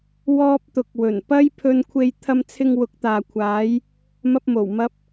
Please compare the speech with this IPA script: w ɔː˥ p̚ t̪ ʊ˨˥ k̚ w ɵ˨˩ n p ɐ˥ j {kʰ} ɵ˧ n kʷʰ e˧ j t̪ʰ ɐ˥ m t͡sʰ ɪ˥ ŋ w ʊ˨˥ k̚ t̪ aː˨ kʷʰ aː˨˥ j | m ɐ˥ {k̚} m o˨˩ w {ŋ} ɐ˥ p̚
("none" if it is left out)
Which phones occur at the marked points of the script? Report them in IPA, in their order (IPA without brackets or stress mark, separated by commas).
pʰ, p̚, m